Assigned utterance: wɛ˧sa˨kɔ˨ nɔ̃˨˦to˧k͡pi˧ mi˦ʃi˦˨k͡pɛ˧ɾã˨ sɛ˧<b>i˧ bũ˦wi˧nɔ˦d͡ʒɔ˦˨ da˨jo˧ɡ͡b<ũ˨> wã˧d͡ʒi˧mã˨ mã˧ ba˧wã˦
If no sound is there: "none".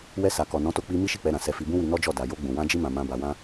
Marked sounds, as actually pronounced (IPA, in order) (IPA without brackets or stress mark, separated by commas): f, ũ˨